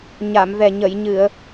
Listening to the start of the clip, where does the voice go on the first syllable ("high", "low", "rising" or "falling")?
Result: low